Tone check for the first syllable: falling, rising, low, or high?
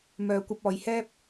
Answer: low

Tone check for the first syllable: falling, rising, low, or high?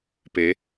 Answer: rising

